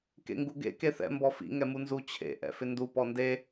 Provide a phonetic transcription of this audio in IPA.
kḛŋɡuɡḛ keθɛ̰ mbɔfḭ ŋɛmunzu t͡ɕʰḛ ʔɛ̰fɪndu pɔnde

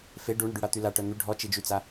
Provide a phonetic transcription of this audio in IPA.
fe ɖuɳəɖyɽa t̪yla ʈœn̪y ɖʱɔt͡ʃid͡ʒyt͡sa

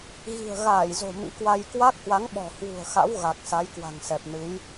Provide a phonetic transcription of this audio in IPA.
ɣi̤˨˩ə̯ɣaː˧˩jzo̤˨˩ mḭ˧˥kwa˧j kwa˦˥k̚hwa˨˦ŋ ɓɔ̤˨˩hwṳ˨˩ə̯xa̰˧˥w ɣa˨˩k̚sa˨˦jkwa̤˨˩ŋ sɛ˨˩p̚nɨ˨˦j

